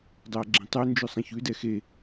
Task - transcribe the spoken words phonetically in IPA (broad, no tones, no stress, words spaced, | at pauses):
dˤɛɐ̯ɡ͡ǁẽtˤʉ nd͡ʒʉsˤɛ̃çʉdɛ xe